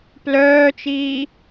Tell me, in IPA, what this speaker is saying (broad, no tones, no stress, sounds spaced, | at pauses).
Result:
p l œː t͡ʃ iː